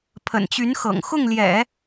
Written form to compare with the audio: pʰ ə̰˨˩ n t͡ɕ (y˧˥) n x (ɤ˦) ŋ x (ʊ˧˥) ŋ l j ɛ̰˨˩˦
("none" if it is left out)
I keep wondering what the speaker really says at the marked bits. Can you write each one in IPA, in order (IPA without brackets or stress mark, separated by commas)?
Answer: y˧˥, ɤ̰˨˩, ʊ˥˩